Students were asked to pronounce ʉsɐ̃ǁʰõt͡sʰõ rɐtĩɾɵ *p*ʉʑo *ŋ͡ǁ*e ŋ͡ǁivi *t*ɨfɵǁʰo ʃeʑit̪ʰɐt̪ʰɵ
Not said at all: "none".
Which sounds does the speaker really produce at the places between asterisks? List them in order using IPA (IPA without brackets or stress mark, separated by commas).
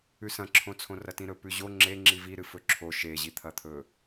p, ŋ͡ǁ, ɾ